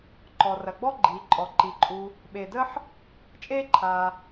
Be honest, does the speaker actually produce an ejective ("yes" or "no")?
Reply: yes